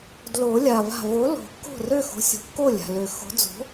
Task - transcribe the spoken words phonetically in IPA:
d l o˨˩˦ lʲ a˩ v a̤˧˩ v o˨˥ l o̤˨˩˦ kː o̤˥˩ r ø˥˩ x o̤˨˥ sʲ o̤˩ kː o˥˩ lʲ a̤˩ l ø˨˩˦ x o̤˨˥ d͡z o̤˨˥

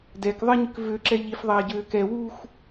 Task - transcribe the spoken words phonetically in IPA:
d ɛ k ðˤ ɪ ɲ ʏ k v ø ǁ ɛ ʎ i f ðˤ ɛː ɟ øː k ɛ w u x

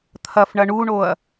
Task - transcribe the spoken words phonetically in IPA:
t̪ʰ ɐ f ɳ ɐ ɳ u ɳ o ɐ̯

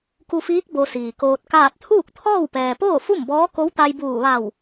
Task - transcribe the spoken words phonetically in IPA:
k u˧ f iː˧˥ k̚ b o˧ s iː˩ k oː˧ t̚ k aː˥˨ t̚ t̪ʰ uː˥˨ k̚ t̪ʰ ɔː˥˨ w p ɛː˩ p oː˥˨ f u˥˨ m b ɔː˧˥ k o˧˥ w t̪ a˧ j b uː˧˩ ʋ a˧˩ w

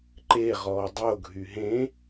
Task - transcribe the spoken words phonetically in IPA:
ǃ e ʁ ɔː dˤ o ɡʱ y ɦ ẽ

